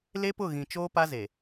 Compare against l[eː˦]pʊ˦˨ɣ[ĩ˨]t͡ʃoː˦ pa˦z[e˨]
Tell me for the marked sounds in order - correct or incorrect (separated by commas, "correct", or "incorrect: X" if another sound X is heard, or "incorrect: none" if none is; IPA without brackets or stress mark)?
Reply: incorrect: e˦, correct, correct